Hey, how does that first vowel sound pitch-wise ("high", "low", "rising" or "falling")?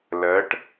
rising